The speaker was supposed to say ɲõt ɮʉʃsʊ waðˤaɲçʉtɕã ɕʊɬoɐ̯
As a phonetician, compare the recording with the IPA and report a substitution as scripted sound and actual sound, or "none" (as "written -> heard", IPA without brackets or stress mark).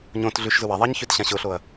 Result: s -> z